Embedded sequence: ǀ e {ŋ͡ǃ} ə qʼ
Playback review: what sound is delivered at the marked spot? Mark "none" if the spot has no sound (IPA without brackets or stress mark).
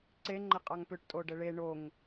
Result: ŋ͡ǃ